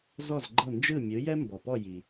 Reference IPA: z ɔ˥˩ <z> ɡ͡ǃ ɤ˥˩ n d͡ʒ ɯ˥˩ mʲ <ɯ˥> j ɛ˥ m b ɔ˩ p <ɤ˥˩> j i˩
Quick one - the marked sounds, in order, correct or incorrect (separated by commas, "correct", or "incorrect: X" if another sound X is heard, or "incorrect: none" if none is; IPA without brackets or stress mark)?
correct, incorrect: ɯ˩˥, incorrect: ɔ˥˩